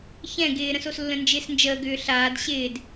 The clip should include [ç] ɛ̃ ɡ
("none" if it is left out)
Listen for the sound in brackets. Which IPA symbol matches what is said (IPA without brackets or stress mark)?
ç